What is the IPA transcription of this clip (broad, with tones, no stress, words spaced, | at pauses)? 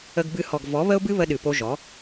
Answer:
ə˧ɡbɨ˧ hɔ˨ɡ vɔ˨˦βə˦ʊ̯bɨ˦ βə˦ɗɨ˨po˦ ʒɔ˨˦